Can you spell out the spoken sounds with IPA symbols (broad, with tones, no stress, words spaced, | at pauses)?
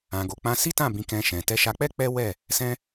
ã˨ɡo˨k͡pã˧ si˦tã˦˨ bĩ˧kɛ̃˧ʃɛ̃˨ tɛ˧ʃa˧k͡pɛ˦ k͡pɛ˦wɛ˦˨ | sɛ̃˦